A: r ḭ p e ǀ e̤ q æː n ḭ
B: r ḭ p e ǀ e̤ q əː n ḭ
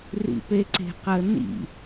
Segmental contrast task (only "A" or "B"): B